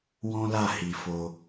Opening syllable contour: high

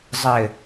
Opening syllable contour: low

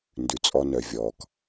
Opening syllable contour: low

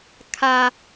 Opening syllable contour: high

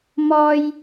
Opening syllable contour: low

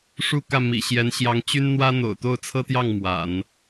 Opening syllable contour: falling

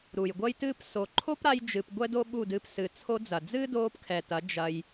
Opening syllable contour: low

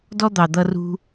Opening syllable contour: high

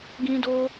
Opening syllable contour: high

